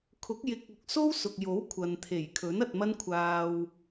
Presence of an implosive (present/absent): absent